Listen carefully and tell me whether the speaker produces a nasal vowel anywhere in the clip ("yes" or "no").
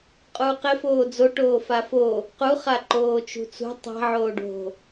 no